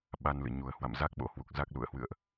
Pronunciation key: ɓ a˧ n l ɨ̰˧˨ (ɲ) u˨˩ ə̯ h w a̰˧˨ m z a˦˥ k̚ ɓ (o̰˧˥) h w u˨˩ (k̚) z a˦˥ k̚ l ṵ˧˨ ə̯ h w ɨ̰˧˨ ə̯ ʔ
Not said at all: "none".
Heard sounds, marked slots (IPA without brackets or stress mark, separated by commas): ɲ, o̰˧˥, k̚